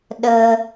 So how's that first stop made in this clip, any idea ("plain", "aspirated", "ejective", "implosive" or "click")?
implosive